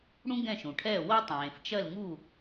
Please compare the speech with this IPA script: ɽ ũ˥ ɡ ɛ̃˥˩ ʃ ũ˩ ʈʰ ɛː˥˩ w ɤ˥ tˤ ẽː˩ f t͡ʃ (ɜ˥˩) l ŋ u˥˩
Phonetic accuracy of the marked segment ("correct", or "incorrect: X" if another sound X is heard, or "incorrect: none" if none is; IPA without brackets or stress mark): correct